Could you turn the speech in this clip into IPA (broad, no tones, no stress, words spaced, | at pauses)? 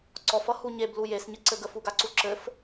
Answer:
ǀɔfʌ huɲeblu jesɲəǀɘ ɡəfuɡaǀu ǁɘf